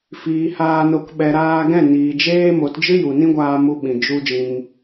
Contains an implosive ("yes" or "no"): yes